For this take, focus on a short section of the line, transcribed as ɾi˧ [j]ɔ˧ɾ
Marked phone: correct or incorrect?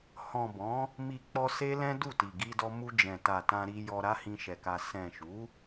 correct